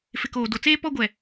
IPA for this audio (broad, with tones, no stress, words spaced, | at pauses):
fɪ˨koː˨do˨t͡seː˦ pɔ˦ɡʷɛ˨